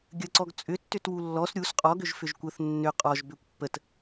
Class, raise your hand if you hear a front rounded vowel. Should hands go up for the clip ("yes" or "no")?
yes